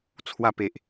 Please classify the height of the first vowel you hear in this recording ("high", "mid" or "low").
low